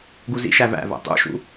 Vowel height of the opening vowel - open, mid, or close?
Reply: close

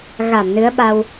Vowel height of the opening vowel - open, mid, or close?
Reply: open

